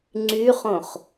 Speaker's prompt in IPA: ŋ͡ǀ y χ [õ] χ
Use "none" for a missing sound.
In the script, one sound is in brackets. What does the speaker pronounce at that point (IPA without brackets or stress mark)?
õ